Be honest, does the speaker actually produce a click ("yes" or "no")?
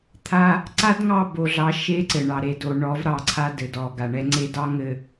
yes